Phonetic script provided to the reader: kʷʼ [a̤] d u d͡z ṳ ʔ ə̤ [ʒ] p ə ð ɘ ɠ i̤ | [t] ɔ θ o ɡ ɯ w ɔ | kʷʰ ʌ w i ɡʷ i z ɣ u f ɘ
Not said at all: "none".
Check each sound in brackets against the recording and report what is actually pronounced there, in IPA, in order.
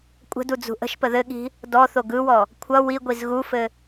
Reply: ə̤, ʃ, d

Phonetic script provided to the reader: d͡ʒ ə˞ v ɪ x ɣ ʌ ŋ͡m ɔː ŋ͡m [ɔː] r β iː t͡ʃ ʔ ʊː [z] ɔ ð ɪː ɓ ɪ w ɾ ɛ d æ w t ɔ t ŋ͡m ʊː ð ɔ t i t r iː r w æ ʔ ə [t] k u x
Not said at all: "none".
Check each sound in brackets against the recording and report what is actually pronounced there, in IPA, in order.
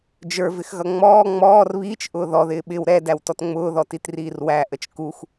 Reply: ɔː, ð, t͡ʃ

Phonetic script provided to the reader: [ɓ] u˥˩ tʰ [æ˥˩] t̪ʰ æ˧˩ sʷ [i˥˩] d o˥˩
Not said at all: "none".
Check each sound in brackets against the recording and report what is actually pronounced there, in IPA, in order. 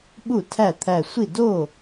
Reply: ɓ, æ˥˩, i˥˩

